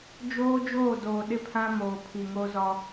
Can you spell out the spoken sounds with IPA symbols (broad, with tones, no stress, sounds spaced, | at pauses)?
d͡ʒ oː˦ d͡ʒ oː˦˨ d oː˨ ɗ ɪ˦˨ pʰ ã˦ m oː˨ pʰ i˨ ŋ o˦ z ɔ˦